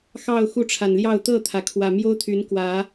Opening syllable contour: falling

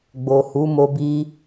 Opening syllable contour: low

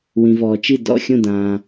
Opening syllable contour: low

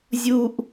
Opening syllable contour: high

